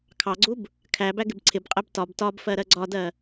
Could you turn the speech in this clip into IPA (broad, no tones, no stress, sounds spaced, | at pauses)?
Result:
kʰ ɑ ɡ͡ǀ u b | kʰ æ b æ ɡ ɪ b ǀʰ ɪ b qʼ ɛ b t ɒ b t ɒ b f ɜ ɾ ɜ ɡ͡ǀ ɒ d ɜ